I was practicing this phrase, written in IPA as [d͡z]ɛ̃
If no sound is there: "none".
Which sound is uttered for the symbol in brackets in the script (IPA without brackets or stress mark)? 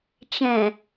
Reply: t͡ʃ